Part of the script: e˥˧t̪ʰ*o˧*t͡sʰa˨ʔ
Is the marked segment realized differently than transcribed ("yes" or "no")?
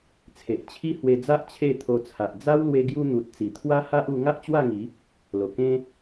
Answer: no